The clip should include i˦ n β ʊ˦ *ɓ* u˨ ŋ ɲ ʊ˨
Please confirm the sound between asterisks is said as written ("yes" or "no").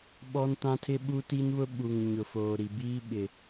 yes